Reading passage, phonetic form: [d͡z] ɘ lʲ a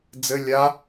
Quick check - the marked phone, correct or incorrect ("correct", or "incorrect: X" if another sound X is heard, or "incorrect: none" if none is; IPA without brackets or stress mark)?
correct